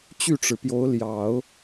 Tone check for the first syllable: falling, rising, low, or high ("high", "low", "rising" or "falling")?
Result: falling